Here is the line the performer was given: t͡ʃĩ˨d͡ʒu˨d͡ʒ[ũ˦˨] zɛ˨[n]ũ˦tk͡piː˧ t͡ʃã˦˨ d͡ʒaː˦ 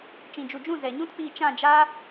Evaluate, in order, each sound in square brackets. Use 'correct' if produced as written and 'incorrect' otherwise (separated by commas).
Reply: correct, incorrect